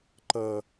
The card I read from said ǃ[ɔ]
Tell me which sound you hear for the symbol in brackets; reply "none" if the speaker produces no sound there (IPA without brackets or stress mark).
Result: ʌ